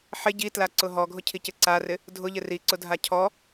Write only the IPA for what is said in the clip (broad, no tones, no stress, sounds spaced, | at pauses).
ħ ɪ ɟ i t l a ǀ ʊ ɦ ɔ ɡʱ ʊ cʰ i c ɪ ǀ a r ɪ | dʱ ʊ ʎ ɪ r i ǀ ʊ dʱ a cʰ ɔ